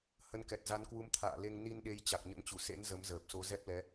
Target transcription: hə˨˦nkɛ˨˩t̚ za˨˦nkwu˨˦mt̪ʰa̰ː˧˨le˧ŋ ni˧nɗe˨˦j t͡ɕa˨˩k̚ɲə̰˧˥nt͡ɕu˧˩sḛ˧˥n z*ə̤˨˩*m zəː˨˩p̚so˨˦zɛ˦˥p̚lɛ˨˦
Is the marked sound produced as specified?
no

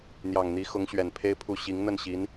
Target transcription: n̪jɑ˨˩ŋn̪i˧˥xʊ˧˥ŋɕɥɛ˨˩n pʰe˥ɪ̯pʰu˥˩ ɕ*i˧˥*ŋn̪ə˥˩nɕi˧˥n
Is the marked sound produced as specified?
yes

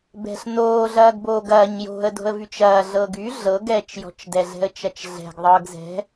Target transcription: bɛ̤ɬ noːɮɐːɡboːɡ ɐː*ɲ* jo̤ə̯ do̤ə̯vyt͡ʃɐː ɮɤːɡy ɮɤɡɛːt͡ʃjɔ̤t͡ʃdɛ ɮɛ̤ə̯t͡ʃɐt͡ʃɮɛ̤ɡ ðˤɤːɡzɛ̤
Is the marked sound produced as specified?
yes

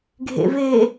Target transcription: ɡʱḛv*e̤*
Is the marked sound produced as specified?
no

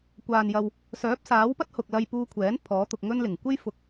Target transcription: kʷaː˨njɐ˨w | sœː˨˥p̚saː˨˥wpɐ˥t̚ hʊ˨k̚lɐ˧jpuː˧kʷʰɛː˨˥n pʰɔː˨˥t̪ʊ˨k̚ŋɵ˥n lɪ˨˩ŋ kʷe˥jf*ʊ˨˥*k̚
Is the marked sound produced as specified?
yes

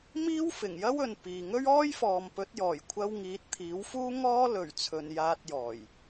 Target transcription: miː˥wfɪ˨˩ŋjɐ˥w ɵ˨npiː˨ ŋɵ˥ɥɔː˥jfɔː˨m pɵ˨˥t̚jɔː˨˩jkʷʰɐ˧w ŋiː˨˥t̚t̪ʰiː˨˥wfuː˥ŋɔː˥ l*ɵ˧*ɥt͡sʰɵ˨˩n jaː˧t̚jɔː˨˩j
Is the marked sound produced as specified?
no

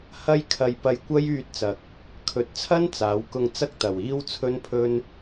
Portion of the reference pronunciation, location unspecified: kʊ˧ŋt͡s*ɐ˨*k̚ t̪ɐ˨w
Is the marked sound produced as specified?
no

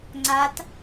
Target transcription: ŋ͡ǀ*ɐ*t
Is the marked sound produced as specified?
no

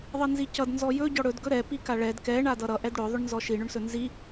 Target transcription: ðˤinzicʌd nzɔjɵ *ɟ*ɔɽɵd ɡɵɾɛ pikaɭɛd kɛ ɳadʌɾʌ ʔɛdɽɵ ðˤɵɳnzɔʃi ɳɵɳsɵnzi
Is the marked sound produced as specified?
yes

